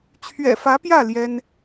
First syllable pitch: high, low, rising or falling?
low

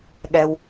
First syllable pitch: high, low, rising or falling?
low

